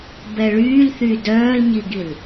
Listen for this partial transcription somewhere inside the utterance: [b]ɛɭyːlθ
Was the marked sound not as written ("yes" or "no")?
no